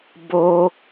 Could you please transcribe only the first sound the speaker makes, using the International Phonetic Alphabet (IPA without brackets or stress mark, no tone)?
b